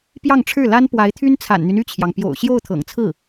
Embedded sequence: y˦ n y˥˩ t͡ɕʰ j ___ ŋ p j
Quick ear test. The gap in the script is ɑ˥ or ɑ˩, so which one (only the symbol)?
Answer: ɑ˩